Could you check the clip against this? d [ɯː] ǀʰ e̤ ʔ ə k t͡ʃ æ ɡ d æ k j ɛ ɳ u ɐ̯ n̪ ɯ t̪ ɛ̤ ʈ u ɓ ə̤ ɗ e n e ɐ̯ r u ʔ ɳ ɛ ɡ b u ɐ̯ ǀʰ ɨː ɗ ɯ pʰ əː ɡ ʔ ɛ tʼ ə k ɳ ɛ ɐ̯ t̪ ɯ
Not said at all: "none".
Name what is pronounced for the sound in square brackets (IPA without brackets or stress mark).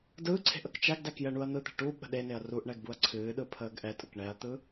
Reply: ɯː